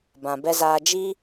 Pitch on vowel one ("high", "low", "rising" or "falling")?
low